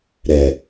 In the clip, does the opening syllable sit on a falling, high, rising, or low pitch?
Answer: low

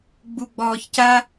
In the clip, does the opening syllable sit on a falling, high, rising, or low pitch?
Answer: low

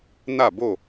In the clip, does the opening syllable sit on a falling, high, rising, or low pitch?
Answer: falling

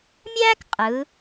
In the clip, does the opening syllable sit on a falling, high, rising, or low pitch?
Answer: high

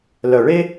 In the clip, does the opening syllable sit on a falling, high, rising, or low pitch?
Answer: low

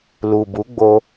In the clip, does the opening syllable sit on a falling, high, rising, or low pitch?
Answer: low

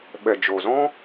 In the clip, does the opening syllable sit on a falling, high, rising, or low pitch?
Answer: low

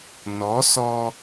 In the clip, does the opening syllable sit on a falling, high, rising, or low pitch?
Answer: rising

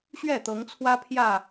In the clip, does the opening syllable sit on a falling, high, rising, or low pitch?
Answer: falling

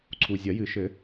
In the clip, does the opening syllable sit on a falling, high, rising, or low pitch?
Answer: low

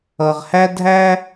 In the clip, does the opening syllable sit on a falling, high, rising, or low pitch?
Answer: low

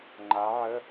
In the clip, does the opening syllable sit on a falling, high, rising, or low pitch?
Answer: rising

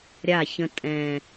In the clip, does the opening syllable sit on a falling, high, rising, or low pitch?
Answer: falling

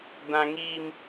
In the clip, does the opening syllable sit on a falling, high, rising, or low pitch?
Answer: high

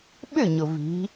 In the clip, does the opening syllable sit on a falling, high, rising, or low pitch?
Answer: falling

